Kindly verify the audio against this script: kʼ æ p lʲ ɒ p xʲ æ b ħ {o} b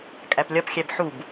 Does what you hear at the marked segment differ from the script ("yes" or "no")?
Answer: yes